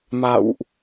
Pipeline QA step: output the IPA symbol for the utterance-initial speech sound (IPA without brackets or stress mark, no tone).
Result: m